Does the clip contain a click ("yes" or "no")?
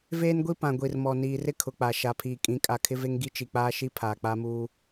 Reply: no